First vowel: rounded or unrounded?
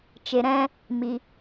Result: unrounded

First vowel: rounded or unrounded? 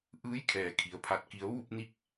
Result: unrounded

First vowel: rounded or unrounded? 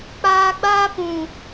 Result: unrounded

